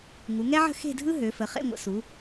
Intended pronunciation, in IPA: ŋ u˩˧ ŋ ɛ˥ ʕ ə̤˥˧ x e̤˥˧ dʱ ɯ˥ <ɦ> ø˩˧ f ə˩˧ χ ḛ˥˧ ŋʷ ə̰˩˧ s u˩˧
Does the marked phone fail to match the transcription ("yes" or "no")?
no